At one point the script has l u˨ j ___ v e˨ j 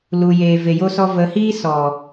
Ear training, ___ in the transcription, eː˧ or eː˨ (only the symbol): eː˨